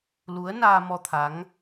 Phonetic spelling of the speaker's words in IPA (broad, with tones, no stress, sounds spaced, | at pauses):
l u˨˦ ə̯ n aː˧ m ɔ˧ t̪ʰ a˨˦ ŋ